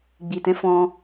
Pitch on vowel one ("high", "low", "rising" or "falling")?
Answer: low